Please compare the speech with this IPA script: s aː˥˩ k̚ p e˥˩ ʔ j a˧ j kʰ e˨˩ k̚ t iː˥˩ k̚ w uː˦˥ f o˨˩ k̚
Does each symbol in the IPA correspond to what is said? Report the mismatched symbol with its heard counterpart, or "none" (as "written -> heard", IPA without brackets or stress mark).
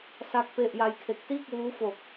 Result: aː˥˩ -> a˥˩